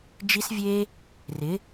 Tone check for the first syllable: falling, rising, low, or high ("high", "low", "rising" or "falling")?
high